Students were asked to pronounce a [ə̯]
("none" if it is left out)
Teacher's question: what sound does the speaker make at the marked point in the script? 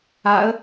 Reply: ə̯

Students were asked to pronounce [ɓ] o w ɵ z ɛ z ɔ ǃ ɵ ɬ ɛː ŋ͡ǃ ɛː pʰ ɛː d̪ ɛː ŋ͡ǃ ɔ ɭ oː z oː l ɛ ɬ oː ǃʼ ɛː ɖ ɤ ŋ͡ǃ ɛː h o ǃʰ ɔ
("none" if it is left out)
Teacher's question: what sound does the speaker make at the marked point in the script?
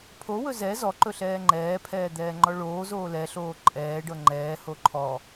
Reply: pʰ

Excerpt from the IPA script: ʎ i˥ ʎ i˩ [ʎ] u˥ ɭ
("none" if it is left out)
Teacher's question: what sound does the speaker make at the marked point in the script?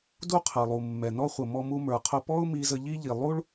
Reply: lˠ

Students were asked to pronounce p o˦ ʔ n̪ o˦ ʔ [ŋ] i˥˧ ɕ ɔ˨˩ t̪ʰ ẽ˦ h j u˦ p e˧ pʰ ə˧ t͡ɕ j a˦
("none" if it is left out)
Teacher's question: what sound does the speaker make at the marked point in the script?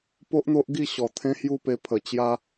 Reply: ɡ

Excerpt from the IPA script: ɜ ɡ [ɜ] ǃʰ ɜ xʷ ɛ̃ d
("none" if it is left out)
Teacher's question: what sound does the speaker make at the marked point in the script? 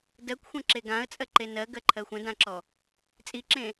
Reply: ɜ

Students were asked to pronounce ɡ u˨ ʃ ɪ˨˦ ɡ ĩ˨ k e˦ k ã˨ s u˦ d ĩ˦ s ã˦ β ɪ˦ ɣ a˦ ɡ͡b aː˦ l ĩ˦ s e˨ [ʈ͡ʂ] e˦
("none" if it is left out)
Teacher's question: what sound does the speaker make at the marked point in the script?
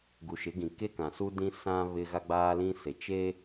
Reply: t͡ʃ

